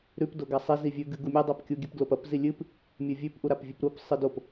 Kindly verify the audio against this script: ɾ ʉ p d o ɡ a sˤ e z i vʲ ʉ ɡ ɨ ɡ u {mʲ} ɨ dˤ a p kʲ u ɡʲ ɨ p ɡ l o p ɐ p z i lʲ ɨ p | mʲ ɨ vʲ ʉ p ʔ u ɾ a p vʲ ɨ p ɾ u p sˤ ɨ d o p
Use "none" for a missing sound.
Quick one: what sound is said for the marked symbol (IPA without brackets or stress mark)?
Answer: mʲ